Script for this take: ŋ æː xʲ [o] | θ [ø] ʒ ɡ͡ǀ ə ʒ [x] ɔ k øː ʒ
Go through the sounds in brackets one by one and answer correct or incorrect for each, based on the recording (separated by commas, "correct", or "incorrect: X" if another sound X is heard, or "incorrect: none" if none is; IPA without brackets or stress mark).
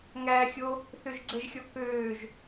correct, correct, incorrect: xʲ